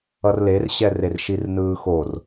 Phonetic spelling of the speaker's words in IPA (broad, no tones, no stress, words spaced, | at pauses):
ʌrlerɕɛrer ʃirnɯːxor